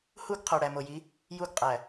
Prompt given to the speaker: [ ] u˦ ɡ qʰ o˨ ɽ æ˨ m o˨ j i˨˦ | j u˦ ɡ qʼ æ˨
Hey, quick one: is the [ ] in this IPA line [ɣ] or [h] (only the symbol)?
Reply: h